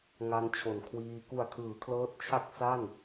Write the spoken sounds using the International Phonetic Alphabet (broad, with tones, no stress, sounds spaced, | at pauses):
ŋ a˧ n t͡ɕʰ o˨˩ n kʰ w iː˧ k u˨˩ a̯ kʰ ɯː˩˦ kʰ l ɤː˦˥ t̚ t͡ɕʰ a˥˩ k̚ s a˥˩ n